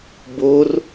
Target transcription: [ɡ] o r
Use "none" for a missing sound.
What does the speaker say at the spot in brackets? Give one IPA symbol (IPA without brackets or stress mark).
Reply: b